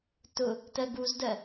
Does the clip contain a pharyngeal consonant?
no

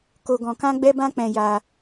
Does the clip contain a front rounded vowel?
no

